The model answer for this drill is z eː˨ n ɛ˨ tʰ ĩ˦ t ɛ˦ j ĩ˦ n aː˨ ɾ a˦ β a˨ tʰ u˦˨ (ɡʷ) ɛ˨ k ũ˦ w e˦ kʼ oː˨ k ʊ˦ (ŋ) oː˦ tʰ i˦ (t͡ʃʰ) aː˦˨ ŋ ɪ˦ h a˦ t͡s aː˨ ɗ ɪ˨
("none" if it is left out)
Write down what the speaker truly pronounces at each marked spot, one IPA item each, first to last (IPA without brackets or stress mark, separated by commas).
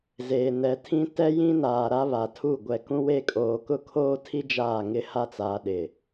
ɡʷ, kʰ, d͡ʒ